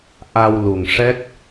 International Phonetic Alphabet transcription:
ʔ a˧ w l u˨˩ ŋ ʂ ɛ˦˥ k̚

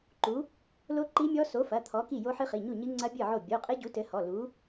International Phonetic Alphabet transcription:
ǃ u˨˥ | l o˦˥ ǃ i˦˥ mʲ ɔ˦˥ s o˨˥ f ɐ˩˧˩ t̪ʰ ɔ˨˥ k i˥˩ j o˦˥ ħ ɨ˦˥ χ i˩˧˩ ɲ u˥˩ ɲ ɨ˦˥ ŋ͡ǀ ɐ˦˥ bʲ ɨ˥˩ ʕ o˥˩ bʲ o˩˧˩ qʼ ɘ˦˥ ɟ u˨˥ t ɘ˨˥ h ɔ˩˧˩ l u˨˥

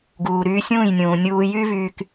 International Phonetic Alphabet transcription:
ɡ uː˨ ɾ yː˧ sʲ ũː˦˨ j nʲ ũː˨ nʲ uː˧ j y˦ v yː˦ k

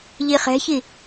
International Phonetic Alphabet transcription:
ʎ i χ ɛ̤ ç i

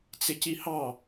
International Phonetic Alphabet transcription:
t͡s ɪ c i h ɑ

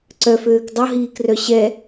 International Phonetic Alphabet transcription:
ǀ œ f øː k dˤ o ɦ iː k r œ ɕ ɛ

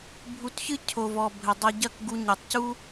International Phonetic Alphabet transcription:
bʱ u˧ t ç ɨ˦ cʰ o˨ v ɔ˨ bʱ ɘ˨ dˤ ɐ˧ ɟ ɐ˦˨ k ɡ u˧ ɲ e˨ tˤ c u˦

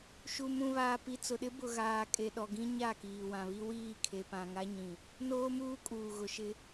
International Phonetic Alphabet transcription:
ʃ u˨ m ũ˨ β aː˨ p i˨ t͡s ʊ˨ ɗ ɪ˦ b ʊ˨ ɣ aː˨ kʼ e˨ ɗ ɔ˨ ɡ ĩ˦ ɲ a˦˨ k iː˨ w ã˨ β i˦ w iː˦˨ kʰ e˨ p ã˨ ŋ a˦ ɲ ĩ˨ | n oː˦ m uː˦ kʼ uː˨ ɣ ʊ˨ ʃ ɪ˦

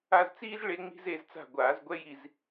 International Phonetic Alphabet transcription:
a˦˨ z t͡s iː˥ z ɭ e˥ ŋ͡m i̤˥ z e˦˨ z t͡s a̤˦˨ ɡʷ aː˨˩˦ z ɡʷ ɛ˥ j i˦˨ z

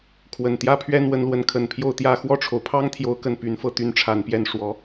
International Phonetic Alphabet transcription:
kʰ w ə˨˩ n t̪ j ä˥ pʰ ɥ ɛ˥ n w ə˧˥ n l w ə˧˥ n kʰ ə˨˩ n pʰ j o˥˧ ʊ̯ t̪ j ä˥˧ x w ɔ˥˩ ʈ͡ʂʰ o˩ ʊ̯ pʰ ɑ˥ ŋ t̪ʰ j o˥ ʊ̯ k ə˥˩ n p y˧˥ n f ɤ˥˧ t̪ y˥˩ n ʈ͡ʂʰ a˨˩ n p j ɛ˥˩ n ʂ w ɔ˧˥

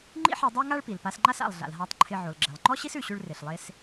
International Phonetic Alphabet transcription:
ŋ͡ǃ ḭ˥ ħ e˧ dˤ ɛ˥ ŋ a˥ ɭ p i˩ l p a˧ s ŋ͡ǃ a˥ s a̰˩ lˠ ɮ a̰˩ l ɦ a˧ tˤ ǃʰ ɪ˧ ʕ o˩ l ɡ͡ǁ ɛ˩ lˠ ŋ͡ǃ ɔ˥ ɕ i˥ s ʉ˧ ɕ ʉ˥ ɭ r ɪ˩ ɬ lˠ e˥ s

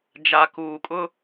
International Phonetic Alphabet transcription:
d͡ʒ a˨ k uː˨ kʼ ʊ˦

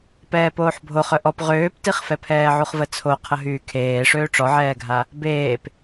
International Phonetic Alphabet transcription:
p ɛː p oː ħ bʱ o χ œ ʔ ɔ p ʁ øː p t i χ f ɛ pʰ ɛː ʕ u χ v ə t͡sʰ o qʰ ə ɦ yː kʰ eː ʂ øː ʈ͡ʂ ɔ ʕ ɛː ɡʱ a | b eː p

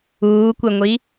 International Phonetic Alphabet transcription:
uː kʷ e ŋʷ i

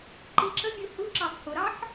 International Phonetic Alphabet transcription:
ǃ i ǁ ə mʲ u h u ǁ ɑ f h ʊ ɾ ɑ ħ

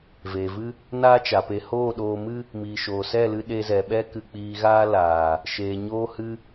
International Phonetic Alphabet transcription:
v eː˨ v ɨ˦ | n aː˦ t͡ʃ a˨ p e˧ h oː˦˨ ɗ oː˧ m ɨ˦ | m iː˨ ʃ oː˨ s ɛ˦˨ l ɨ˧ ɗ e˧ z ɛ˨ ɓ ɛ˦ k ɨ˧ k͡p iː˧ ɣ aː˦ l aː˨ | ʃ eː˨ ɲ oː˧ h ɨ˧

